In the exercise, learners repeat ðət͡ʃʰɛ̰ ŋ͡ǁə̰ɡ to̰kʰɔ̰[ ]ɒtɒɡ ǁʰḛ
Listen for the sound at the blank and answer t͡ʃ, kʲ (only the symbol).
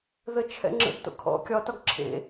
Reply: kʲ